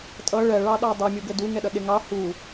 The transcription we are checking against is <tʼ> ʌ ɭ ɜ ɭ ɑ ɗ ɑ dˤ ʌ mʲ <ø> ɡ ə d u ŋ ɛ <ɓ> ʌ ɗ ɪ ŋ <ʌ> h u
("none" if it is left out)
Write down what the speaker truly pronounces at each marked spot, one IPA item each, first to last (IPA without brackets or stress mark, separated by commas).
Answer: tʼ, u, ɗ, ɑ